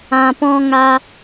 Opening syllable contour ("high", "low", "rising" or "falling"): low